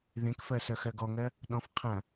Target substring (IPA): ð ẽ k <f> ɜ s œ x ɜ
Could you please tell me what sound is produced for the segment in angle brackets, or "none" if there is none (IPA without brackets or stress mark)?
f